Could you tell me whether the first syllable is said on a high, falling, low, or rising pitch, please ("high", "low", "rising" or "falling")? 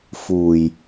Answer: low